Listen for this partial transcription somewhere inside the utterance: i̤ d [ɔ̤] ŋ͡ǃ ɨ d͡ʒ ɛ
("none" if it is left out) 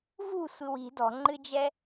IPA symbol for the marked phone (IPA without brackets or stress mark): ɔ̤